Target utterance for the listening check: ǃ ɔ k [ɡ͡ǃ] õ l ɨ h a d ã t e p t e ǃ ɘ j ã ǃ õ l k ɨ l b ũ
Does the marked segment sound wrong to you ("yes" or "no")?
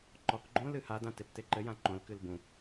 no